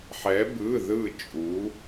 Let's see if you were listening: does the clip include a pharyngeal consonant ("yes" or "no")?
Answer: yes